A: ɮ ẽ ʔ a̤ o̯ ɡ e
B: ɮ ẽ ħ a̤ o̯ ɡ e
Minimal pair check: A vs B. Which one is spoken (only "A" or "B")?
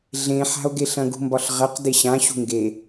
B